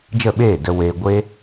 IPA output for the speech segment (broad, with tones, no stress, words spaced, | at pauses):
d͡ʒə˦˨ɓeː˦˨ də˦we˦ ɡʷe˦